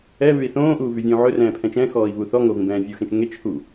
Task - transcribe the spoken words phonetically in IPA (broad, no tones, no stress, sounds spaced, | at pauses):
ɛ β ʉ i̯ θ õː ʔ uː v y vʲ õː ʕ ɵ r ɛ̃ː pʰ ɛ̃ t͡ʃ ɛ̃ x ɔː i̯ β u θ ɔ ŋ o v ĩ b ɛ̃ː vʲ u x ẽ t͡ʃ ŋ e t͡ʃ h u